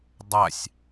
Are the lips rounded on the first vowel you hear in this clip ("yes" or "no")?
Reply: no